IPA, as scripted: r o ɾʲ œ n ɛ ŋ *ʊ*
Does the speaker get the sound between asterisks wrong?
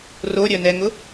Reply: no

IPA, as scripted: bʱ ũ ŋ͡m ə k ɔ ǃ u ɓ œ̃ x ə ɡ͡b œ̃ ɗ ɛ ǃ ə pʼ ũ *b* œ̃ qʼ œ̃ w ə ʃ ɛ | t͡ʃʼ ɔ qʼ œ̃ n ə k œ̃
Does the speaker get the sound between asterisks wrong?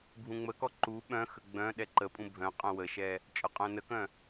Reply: yes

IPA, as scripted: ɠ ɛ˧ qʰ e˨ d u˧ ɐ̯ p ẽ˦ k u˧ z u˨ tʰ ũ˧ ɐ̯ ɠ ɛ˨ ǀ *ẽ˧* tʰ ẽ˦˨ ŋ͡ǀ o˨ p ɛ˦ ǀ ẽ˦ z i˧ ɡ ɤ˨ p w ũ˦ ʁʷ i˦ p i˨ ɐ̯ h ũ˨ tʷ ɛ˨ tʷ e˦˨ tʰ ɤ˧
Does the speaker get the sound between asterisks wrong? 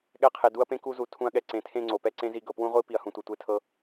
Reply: yes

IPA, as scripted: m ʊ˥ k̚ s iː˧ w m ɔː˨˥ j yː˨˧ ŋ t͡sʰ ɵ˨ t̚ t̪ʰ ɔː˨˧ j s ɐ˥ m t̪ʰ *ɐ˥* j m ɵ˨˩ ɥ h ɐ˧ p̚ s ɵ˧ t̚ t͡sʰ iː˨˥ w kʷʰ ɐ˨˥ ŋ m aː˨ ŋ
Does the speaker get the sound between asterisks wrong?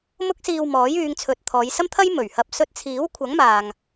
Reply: no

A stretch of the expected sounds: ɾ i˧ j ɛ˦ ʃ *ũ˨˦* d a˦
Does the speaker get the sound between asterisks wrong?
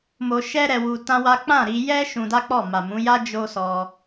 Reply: yes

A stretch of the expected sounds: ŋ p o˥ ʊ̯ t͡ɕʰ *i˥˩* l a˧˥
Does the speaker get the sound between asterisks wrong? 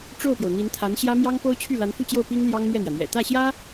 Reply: yes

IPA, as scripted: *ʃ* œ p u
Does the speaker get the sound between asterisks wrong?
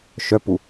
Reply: no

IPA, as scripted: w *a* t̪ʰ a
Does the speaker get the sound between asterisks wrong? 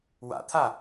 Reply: yes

